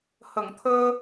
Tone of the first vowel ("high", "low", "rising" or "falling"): low